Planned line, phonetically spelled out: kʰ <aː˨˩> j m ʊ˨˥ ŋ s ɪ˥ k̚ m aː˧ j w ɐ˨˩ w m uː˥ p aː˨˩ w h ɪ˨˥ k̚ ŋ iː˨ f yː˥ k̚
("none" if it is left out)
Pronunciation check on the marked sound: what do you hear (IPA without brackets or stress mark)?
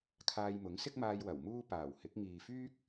aː˧